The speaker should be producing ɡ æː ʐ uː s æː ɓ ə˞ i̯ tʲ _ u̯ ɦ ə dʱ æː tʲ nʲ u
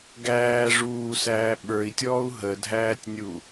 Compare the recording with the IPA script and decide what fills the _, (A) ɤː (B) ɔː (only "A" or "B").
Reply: B